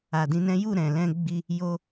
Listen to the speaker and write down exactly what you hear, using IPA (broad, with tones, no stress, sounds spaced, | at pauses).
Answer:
a˨ d ĩ˨˦ n ɛ̃˦ j u˦˨ ɾ ɛ̃˨ l ɛ̃˧ ɡ͡b i˧ | j o˧